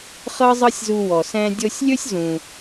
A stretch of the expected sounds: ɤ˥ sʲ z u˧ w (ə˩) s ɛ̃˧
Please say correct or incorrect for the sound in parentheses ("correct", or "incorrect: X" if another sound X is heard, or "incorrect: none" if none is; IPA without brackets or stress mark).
incorrect: ɔ˩